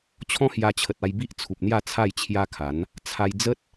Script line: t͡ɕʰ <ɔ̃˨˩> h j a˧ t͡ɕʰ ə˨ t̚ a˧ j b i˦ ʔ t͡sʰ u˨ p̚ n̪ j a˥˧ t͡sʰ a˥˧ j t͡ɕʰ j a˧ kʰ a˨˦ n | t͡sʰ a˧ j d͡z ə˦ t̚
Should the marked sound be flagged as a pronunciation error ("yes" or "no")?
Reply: yes